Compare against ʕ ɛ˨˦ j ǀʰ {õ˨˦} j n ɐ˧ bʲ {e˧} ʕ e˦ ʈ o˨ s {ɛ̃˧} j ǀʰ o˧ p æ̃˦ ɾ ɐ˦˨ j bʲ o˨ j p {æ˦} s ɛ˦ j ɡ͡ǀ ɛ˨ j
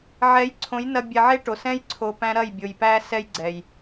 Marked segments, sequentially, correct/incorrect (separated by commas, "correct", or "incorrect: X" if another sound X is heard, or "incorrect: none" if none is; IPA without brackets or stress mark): correct, incorrect: ɛ˧, incorrect: ɛ̃˦, correct